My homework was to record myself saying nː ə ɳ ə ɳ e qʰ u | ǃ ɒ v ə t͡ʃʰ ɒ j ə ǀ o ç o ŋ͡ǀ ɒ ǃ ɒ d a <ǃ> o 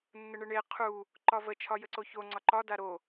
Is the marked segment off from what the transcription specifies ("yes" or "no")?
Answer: yes